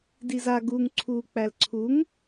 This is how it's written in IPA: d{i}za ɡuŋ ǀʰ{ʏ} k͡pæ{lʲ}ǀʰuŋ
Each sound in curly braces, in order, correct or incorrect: correct, incorrect: u, incorrect: l

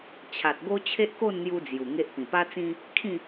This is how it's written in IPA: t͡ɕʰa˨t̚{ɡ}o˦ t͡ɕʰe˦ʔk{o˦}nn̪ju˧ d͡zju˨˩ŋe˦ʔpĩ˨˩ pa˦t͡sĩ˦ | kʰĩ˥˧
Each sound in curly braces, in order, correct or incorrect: correct, incorrect: o˥˧

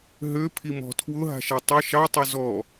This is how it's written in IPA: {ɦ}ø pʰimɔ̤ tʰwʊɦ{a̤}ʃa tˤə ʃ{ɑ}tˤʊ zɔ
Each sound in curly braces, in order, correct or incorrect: correct, correct, correct

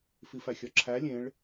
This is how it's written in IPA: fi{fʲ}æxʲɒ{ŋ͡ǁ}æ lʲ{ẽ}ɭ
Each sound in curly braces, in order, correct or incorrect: incorrect: f, incorrect: ǁʰ, correct

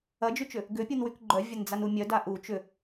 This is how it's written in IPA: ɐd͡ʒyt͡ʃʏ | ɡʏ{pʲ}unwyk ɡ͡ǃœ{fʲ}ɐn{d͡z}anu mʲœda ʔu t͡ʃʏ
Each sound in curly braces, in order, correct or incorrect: correct, incorrect: vʲ, correct

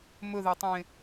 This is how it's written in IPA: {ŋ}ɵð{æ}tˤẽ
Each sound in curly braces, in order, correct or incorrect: incorrect: m, correct

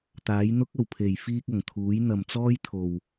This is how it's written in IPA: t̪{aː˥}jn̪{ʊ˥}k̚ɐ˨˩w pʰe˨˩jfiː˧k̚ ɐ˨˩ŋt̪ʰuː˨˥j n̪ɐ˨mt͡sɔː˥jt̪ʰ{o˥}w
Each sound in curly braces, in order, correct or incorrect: incorrect: aː˨˥, correct, incorrect: o˨

